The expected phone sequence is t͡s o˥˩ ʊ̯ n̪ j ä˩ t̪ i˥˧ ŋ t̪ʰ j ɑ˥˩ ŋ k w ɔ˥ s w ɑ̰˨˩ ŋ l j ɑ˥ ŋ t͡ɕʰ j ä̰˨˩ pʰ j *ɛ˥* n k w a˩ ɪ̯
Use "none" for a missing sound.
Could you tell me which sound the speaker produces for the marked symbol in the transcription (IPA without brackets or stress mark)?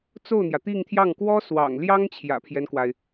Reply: ɛ˦